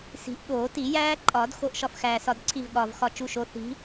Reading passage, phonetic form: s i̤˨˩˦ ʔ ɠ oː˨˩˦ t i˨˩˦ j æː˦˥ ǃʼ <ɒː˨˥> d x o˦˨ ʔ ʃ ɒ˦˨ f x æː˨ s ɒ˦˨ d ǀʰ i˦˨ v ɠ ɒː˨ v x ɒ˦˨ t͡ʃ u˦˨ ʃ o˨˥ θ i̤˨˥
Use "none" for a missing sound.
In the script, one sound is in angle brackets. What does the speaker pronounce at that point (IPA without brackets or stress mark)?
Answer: ɒː˨˩˦